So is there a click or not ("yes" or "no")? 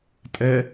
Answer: no